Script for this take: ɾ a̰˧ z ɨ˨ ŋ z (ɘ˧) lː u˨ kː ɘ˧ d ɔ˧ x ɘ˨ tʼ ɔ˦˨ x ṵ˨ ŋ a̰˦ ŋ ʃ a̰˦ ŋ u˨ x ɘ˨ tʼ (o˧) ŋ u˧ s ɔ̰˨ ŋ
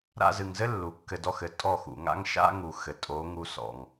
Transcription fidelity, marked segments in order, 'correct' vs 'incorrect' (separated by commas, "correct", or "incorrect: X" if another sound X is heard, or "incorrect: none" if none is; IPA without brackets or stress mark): incorrect: ɘ˦, incorrect: o˨˦